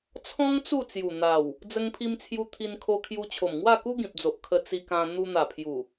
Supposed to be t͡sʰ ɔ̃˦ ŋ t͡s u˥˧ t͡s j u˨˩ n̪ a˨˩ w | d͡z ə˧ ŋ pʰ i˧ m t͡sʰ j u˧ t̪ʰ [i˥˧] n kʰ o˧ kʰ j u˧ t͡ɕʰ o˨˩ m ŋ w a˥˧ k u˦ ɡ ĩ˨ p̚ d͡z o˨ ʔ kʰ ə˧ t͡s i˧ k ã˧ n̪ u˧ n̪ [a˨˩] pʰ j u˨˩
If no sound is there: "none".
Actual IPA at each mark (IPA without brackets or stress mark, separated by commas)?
i˧, a˨˩